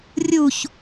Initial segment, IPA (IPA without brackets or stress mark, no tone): rʲ